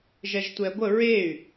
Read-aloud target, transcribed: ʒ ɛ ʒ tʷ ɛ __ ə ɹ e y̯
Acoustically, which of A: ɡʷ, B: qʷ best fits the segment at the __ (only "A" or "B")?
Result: A